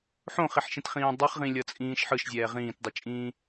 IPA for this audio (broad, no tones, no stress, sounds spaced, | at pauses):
ħ õ χ i ħ ʃ ĩ t χ ĩː dˤ i χ ʁ ĩ lʲ ʌ t͡sʼ ĩː ʃ ħ ɯ ʃ zʲ ɛː ʁ ĩː t dˤ ɯ t͡ʃʼ ĩː